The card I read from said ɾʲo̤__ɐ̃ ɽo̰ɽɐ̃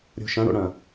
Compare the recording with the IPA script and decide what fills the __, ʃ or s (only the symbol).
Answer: ʃ